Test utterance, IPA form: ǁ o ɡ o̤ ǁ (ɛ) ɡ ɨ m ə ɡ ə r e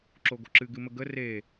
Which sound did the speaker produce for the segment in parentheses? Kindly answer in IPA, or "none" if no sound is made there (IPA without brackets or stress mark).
ɨ